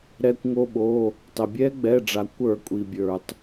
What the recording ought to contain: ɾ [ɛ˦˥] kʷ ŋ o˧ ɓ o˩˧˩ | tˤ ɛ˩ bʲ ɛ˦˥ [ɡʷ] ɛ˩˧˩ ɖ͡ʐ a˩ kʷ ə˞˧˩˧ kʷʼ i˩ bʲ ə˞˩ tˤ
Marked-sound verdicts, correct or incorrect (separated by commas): incorrect, incorrect